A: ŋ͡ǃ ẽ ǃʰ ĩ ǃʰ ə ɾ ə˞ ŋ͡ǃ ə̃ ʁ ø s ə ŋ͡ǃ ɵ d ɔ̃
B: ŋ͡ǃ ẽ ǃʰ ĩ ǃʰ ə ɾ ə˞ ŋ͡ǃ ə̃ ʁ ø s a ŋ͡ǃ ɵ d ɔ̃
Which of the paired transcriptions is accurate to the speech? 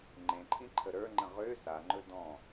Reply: B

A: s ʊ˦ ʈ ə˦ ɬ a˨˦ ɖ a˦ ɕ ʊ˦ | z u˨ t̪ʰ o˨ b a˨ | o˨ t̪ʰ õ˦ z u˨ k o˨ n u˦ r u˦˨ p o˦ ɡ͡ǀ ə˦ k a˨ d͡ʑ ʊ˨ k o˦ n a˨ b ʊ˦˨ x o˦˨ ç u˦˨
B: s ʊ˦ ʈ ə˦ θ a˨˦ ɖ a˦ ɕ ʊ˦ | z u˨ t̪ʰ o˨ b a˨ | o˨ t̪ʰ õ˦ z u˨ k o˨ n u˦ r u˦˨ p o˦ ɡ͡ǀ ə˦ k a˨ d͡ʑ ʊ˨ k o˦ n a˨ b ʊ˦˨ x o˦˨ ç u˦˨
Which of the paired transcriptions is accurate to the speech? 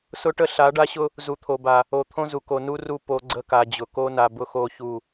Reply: A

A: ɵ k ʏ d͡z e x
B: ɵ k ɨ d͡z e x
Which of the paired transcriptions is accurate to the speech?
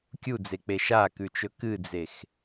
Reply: B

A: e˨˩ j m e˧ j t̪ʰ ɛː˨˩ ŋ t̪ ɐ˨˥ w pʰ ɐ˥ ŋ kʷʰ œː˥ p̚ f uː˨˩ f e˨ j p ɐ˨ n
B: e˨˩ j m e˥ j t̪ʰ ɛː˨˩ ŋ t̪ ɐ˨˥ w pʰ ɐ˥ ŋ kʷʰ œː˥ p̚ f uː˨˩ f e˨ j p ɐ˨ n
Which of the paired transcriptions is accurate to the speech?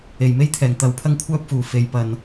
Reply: B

